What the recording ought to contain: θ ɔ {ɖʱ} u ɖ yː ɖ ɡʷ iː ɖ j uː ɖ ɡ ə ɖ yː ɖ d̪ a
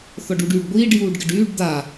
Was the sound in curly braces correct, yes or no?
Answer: no